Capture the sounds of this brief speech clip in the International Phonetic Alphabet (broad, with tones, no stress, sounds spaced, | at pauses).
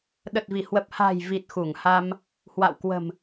ɗ ə˨˩ t̚ v i˧˩ h w ə˨˩ p̚ h a̤˨˩ j v i˨˩ t̚ x u˧˩ ŋ h a˧ m | h w a̰˧˨ w k w ə̤˨˩ m